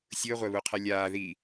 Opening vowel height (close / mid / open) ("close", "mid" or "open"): close